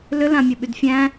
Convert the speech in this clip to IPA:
lʏlãmʲəɓyd fʲæ̃

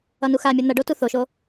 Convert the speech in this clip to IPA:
ʌnuxamʲʌ n̪ʌɖo tuθoʃo

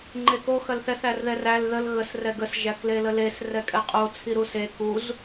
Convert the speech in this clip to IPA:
ŋ͡ǃeko xɐlθɛθ ærðɛræl ðəl ɣəs rɛɡəs ʒækleləles rɛkʼɛqʼo t͡sʰiɾuse kuz

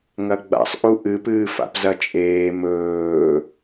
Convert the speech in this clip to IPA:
ŋɐɡ͡ba̰sˤʔu ʔɨpɨː fa̰pzɐt͡ʃʼeː mɵː

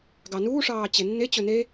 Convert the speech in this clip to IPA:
ɡɑnuːʂɑː t͡ɕenːe t͡ɕɵne

